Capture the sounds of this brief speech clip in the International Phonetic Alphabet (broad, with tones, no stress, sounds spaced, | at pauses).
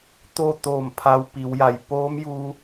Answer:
t̪ o˥˨ t̪ oː˧˩ m pʰ a˧ w p i˩˧ w j a˧˩ j p oː˧˥ m j uː˧